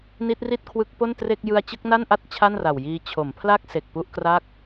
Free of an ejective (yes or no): yes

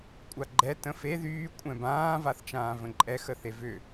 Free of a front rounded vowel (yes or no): no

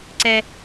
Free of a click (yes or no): no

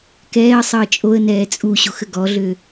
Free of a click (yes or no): yes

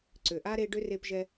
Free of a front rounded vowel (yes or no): no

